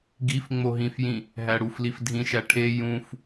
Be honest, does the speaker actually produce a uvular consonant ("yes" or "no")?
no